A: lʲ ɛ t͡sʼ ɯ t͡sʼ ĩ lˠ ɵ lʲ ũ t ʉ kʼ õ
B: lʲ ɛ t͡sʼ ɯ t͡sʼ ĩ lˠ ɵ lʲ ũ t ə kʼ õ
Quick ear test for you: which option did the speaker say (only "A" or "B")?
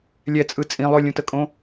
B